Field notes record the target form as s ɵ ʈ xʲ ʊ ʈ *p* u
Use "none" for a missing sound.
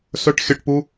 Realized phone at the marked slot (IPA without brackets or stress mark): p